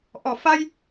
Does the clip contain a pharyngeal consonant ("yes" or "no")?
no